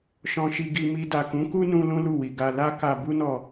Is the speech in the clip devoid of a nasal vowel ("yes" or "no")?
no